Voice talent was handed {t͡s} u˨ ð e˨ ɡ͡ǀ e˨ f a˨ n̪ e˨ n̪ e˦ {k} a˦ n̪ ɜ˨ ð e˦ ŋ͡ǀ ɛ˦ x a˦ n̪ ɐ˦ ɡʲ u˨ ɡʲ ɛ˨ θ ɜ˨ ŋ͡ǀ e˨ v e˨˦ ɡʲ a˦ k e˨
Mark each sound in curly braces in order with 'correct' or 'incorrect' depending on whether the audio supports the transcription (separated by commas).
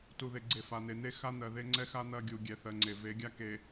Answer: incorrect, incorrect